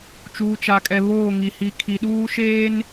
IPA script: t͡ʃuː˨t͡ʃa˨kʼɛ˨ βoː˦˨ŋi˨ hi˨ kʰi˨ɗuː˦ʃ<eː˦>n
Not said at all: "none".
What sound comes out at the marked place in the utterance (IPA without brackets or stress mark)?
eː˦